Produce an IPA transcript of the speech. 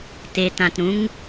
t e˨ t ã˨ t ɾ ũ˦ ŋ

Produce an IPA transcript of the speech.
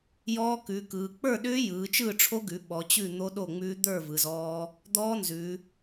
j ɔː˦˥ k ʉ˩˧ k ɯː˩˧ k͡p ə˞˥˨ ɗ ʏː˦˥ j ɯː˩˧ t͡ʃ ɯː˥˨ ʈ͡ʂʰ o˦˥ ɡ ʉ˩˧ ɓ ɔ˩˧ t͡ɕ ʉ˥˨ n̪ o˦˥ ɗ o˥˨ ŋ͡m ʉː˦˥ d̪ ə˞˥˨ v ɯ˩˧ z ɔː˦˥ | d̪ ɔː˦˥ n z ʉ˩˧

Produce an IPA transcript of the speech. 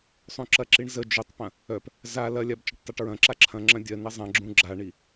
sˤ ũ ǁ ɐ ǁ i ɳ z ə d͡ʒ ʊ tˤ p ɐ̃ | œ p | z a l ɐ lʲ a b t͡ʃ ɐ ʈ tˤ ɛ ʈ ɹ ɐ̃ ǁ a ǁʰ ɐ̃ ŋ͡ǁ ɐ̃ dʲ ɜ n̪ ɛ zˤ ɐ̃ ɡ͡ǁ ũ ɡ͡ǁ a ɳ i

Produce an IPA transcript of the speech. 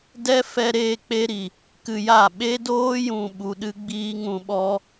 d ɛ˦ f ɛ˧ ɾ eː˧ k͡p e˧ ɾ i˨ | k ɨ˧ j a˦˨ ɓ e˦ d oː˦ j ũ˨ ɓ u˨ ɗ ɨ˧ ɡ͡b iː˧ ŋ ũ˨ ɓ ɔ˧

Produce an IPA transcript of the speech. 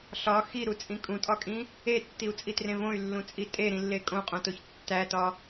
ɬ ɒ x i ɾ u t͡sʼ ĩ kʼ ũ tʼ ɒ kʼ ĩ | e tː i u̯ t͡sʼ i t r ẽ v õ y̯ lː ũ t͡sʼ i tʼ e ɾ ĩ lː e kʼ õ qʼ õ t o ç tː æ t ɒ

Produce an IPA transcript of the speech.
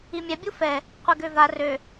i mʲ ɛ bʲ u f ɛ | qʷ e ɡ ø v a r ø

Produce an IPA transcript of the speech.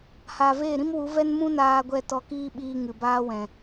h a˨ v e˦˨ ɾ ĩ˦ m w u˨˦ v ɛ˦ n m ũ˦ n aː˧ ɡʷ ɛ˧ t ɔ˧ k iː˦ ɓ iː˧ ŋ ɨ˨ b aː˦ w ɛ̃˨

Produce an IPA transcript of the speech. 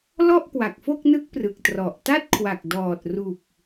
l ɔ˥˩ ʔ k w a˨˩ k̚ f o˥˩ k̚ n ɯ˦˥ k̚ p r ɯ˨˩ k̚ t r ɔ˨˩ ʔ t a˥˩ t̚ kʰ w a˨˩ k̚ d ɔː˨˩ t̚ r u˨˩ k̚

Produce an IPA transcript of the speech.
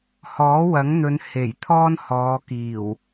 h ɔː˨˥ w ɐ˨˥ ŋ n̪ ɵ˨˧ n h e˨˩ j t̪ʰ ɔː˥ n h ɔː˨˧ k iː˨˩ w

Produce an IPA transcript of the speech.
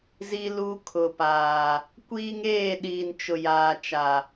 z i˦ l u˦ kʰ ʊ˨ p aː˨ | kʷ iː˦ ŋ eː˦˨ ɗ iː˨ n t͡ʃ ʊ˨ j aː˨ t͡ʃ a˨

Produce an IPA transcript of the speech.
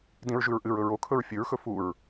d ĩ ɹ ʒ ʉ ɹ ʔ ɨ ɹ ɵ ɹ o kʰ ɵ ɹ fʲ ɨ ɹ x ɵ f u ɹ

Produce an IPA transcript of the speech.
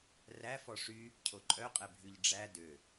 r æ f ɔ ʂ y | cʰ o ǃʼ œ qʼ ɛ bʱ y ʎ ɖ͡ʐ æ d ø

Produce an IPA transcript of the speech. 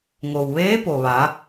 ŋ o˩ w ʋ eː˧˥ p o˩ ʋ a˩˧

